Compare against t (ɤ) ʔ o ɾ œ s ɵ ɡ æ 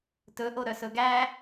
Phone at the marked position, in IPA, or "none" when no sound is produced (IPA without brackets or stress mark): ɵ